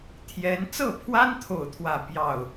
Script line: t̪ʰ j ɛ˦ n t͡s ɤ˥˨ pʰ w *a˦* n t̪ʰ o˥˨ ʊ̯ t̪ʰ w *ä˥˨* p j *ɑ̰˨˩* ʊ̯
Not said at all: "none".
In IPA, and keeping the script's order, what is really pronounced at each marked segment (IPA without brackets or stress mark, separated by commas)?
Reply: a˦, ä˥˨, ɑ˥˨